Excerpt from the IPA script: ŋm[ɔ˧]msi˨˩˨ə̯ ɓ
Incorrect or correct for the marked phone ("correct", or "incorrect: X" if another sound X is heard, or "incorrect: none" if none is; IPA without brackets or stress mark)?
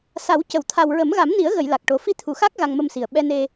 incorrect: ə˧